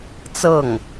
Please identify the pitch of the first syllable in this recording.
falling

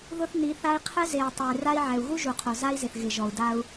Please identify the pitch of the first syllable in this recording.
high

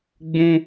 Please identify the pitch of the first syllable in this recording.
high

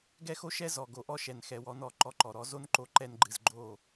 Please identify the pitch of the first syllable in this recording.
high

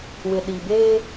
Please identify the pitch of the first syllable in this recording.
low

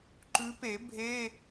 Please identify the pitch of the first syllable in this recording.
rising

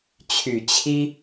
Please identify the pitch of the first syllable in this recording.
low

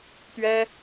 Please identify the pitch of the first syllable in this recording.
high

